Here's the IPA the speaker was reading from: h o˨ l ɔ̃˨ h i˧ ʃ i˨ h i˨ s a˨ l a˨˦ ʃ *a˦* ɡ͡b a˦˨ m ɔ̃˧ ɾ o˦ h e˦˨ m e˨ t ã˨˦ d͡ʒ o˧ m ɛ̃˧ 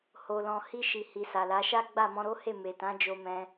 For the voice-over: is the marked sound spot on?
yes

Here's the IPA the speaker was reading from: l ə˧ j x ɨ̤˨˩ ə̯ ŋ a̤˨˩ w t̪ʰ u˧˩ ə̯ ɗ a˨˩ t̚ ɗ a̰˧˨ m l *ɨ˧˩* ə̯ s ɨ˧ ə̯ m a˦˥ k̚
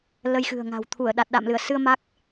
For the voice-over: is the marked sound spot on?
yes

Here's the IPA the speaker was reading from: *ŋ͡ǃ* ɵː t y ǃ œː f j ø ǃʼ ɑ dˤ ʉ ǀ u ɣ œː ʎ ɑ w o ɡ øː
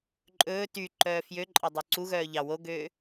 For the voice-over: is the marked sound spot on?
no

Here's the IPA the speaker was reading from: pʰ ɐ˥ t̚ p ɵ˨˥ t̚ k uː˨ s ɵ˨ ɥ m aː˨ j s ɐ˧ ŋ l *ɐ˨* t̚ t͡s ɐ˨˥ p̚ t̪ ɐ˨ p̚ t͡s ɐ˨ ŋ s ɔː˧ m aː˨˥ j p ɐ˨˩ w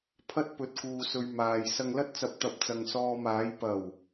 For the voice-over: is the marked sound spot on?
no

